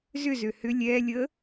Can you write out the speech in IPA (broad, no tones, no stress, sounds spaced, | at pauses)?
z ʏ z ø h ʏ lʲ ɛ lʲ ə